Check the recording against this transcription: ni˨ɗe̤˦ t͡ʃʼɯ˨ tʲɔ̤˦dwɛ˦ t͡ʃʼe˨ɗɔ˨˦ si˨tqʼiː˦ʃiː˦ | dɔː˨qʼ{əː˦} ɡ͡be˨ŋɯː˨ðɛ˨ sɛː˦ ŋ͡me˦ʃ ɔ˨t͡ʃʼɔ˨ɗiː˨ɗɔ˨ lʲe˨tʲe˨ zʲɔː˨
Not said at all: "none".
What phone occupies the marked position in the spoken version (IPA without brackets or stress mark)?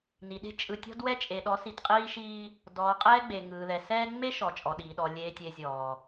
ɛː˦